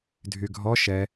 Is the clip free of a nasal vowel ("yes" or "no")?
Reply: yes